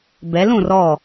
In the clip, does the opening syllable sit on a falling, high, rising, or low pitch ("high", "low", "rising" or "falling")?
rising